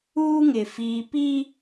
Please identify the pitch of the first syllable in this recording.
high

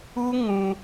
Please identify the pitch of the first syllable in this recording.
high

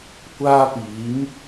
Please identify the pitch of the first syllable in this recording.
high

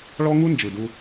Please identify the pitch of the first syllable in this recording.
high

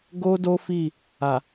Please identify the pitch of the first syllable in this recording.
high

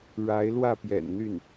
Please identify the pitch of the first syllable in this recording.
rising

